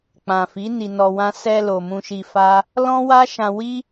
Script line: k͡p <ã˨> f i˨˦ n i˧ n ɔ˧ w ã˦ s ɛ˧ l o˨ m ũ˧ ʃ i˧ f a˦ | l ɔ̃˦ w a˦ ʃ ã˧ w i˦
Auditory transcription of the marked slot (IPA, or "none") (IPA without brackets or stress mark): ã˨